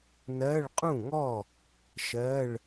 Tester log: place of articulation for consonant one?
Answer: alveolar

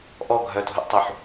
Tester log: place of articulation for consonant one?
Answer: glottal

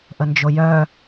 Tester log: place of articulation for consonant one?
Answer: glottal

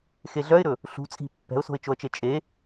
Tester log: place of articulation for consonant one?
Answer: velar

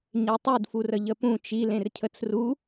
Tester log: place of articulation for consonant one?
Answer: palatal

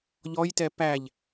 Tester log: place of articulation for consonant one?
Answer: palatal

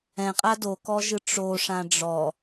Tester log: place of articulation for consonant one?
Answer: uvular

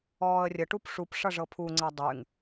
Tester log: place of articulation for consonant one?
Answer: alveolar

